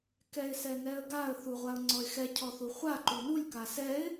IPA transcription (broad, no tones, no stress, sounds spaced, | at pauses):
k ɛ ɪ̯ s ɛ n ɛ ə̯ ɡ a ə̯ θ u ʁʷ a ʊ̯ ŋ͡ǀ ɔ ɪ̯ x ɛ cʰ ɔ θ u χʷ a ǃ u n u lʲ k a s ɛ ɪ̯